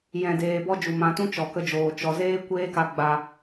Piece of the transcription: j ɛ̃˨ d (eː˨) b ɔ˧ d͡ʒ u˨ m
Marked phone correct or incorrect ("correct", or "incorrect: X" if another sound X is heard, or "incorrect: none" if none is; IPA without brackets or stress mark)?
correct